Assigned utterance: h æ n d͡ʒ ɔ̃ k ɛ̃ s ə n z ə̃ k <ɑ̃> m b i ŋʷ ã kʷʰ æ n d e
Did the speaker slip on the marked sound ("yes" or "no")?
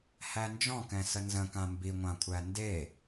yes